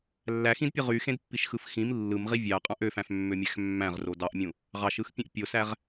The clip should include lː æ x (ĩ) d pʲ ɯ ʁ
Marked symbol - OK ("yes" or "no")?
yes